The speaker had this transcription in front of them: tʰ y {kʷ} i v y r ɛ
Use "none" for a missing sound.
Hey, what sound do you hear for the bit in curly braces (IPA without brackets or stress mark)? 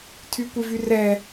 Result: kʷ